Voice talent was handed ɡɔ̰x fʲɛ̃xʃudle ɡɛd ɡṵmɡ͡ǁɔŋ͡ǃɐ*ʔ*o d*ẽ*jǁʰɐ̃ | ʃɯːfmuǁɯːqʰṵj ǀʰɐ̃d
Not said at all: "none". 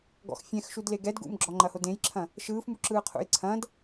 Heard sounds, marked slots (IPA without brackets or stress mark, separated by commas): h, ẽ